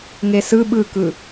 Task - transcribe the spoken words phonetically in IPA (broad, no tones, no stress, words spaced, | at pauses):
ŋesɯ ɓɯkɯ